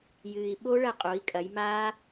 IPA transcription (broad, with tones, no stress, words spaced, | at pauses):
jɨː˩i̯ɓo˦˥ ɭɐ˥˩qʼo˩˧i̯ kʼɐ˩˧jmaː˦˥